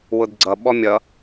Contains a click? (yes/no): yes